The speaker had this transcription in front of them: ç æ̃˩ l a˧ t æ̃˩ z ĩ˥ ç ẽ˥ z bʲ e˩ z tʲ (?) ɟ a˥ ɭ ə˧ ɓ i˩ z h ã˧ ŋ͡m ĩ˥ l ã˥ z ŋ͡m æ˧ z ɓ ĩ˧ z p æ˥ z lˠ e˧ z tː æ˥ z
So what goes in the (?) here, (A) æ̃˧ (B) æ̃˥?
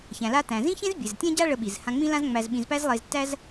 B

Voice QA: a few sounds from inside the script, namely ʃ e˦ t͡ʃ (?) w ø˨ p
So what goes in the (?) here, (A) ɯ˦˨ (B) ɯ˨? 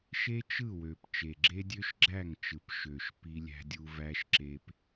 A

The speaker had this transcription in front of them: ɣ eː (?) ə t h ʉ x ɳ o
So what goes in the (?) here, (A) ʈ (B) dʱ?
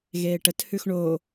A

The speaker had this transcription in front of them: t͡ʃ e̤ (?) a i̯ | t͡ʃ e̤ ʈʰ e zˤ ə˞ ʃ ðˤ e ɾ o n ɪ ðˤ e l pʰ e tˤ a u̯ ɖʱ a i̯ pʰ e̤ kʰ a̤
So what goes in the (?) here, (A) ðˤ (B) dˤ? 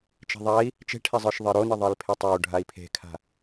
A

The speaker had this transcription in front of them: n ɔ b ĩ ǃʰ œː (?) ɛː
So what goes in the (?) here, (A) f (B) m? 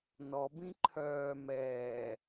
B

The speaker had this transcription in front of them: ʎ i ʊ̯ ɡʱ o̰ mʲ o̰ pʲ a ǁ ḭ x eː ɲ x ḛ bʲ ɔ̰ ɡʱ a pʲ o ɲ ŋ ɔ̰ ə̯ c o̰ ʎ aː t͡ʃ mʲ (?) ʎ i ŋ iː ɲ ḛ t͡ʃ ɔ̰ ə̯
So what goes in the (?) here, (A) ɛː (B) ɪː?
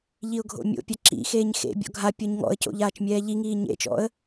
A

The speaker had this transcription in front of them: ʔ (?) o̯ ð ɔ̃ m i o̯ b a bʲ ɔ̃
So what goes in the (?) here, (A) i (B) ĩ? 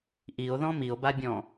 A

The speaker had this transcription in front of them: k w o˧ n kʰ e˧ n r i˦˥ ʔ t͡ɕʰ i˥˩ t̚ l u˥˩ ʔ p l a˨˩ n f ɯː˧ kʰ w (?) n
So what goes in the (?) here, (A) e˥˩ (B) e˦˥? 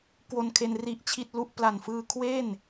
A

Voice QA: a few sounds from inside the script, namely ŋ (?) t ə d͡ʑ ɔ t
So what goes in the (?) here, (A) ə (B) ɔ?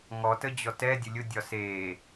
B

